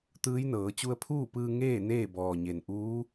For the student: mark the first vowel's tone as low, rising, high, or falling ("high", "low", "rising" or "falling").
rising